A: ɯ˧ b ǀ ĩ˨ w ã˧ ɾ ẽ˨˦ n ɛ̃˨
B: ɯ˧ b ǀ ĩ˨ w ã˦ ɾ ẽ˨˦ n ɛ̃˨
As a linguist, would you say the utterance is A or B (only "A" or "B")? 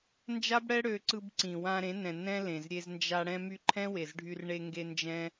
A